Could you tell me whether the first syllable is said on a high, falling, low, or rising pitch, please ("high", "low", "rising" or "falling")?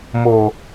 low